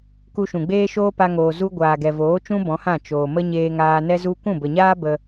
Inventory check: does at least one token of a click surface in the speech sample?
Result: no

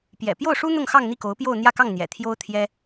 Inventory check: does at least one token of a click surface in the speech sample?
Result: no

